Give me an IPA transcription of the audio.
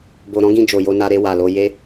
b o˨ ɾ ɔ̃˨˦ ɡ ĩ˧ d͡ʒ o˨ j o˧ n a˧ ɾ e˧ w a˨ l o˧ j e˦

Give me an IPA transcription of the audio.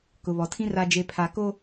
k ʊ˨ β ɔ˨ tʰ ĩ˦ r a˨ d͡ʒ e˨ pʰ a˨ k o˦

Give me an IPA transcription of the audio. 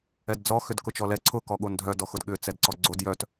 ɛ d d͡z ɔ x ʏ d k ʊ t͡ʃ ɔ l ɛ ǀʰ ʊ k ɔ ɠ o n dʱ œ d ɔ x ʊ d ɠ ʏ t͡s ɛ d ǀ ɔ ɡ͡ǀ o d j œ t

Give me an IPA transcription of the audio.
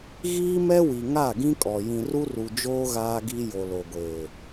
ɣ iː˦ m ɛ˦ w i˨ ŋ a˦˨ ɡ ĩ˦ kʼ ɔ˨ j ĩ˨ r u˦ r u˨ d͡ʒ oː˦ ɣ aː˦ ɡ i˦ j o˨ l o˨ ɡʷ eː˨

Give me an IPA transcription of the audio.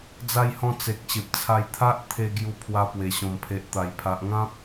d͡z a˧ j h ɔ̃˧ t͡s e˨ k̚ ɕ e˨ p̚ t͡sʰ a˧ j t̪ʰ a˦ ʔ t̪ʰ e˧ ɡ j u˧ pʰ w a˧ p w e˨˩ ɕ ɔ̃˨˩ m pʰ e˨ ʔ t̪ a˨˩ j pʰ a˨ ʔ ŋ ã˦ p̚

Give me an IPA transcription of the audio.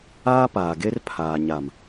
aː˦ p aː˨ ɡ e˦ r pʰ aː˨ ɲ a˨ m

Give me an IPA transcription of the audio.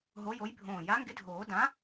ɦ o˨˥ j o˨˥ j bʱ õː˧˩ j a˨˥ ŋ ɡ ɪ˨˥ dʱ oː˨˩˦ d ã˨˥

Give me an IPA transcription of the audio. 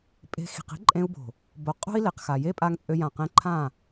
pʼ e̤˧ x i̤˨ q i̤˦ ǃʼ ẽ˧ u̯ b o̤˨ | b o˨ qʼ o̤˦ i̯ l e˨ q x a˨ j e˦ pʼ a˧ ŋ t͡sʼ ø˧ j ã˨ q ẽ˧ ǃʰ ã˦˨

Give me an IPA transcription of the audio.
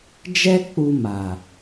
d͡ʒ ɛ˦ k͡p u˧ m a˨

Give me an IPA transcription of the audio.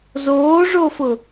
z oː ʐ o f ʊ

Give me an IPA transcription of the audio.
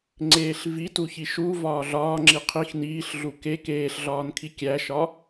ŋ͡ǀ eː ɬ v i t u ç i ʃ u v ɒː ɮ ɒː ŋ͡ǁ i qʰ i x n iː ɬ ɮ u k e k eː ɬ ɮ ɒː n kʰ i kʲ æ ʃ ɒ

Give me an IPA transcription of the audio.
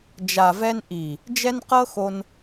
d͡ʒ a˨ v ɛ˧ n ʔ i˨ | d͡ʒ ɛ˦ n q ɤ˦ x o˧ n

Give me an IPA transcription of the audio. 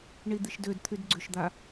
ɳ i d̪ i ʃ d ø d t̪ʰ y d ɡ͡ǀ ʏ ʃ d̪ a

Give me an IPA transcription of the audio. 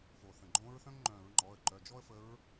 f o˩ θ ə̃˩ ɡ͡ǃ õ˧˥ ɹ θ œ̃˥ ŋ ŋ͡ǃ œ̃˧˩˧ ɹ ŋ͡ǃ ɔ˩˧˩ ə̯ ǃ œ˩˧˩ d͡ʒ ɔ˥ ə̯ f ə˧˥ ɹ

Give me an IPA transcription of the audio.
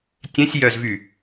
tʲ ɛ̃ sʲ j œ z v y

